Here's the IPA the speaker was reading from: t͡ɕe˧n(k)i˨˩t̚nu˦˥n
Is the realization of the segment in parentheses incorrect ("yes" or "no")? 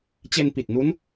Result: yes